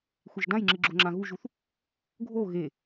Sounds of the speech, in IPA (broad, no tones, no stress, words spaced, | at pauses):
xʷeʒdãjŋ͡ǁɨ ɡ͡ǁoŋ͡ǁãɣuʒuθ | ɡʱo ɣe